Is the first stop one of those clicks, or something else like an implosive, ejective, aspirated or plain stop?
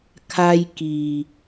aspirated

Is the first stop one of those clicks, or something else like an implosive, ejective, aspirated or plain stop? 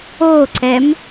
click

